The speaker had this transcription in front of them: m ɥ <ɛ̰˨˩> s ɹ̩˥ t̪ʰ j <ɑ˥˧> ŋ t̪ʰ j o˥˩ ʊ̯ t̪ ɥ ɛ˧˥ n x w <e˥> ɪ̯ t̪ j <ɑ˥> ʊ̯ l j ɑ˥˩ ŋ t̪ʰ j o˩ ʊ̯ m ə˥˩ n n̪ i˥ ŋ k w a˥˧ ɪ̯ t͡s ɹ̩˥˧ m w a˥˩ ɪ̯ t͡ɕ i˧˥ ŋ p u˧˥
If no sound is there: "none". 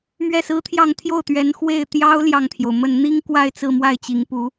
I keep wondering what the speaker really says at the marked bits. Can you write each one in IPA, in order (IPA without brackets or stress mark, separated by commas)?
ɛ˥˩, ɑ˥˧, e˥˩, ɑ˥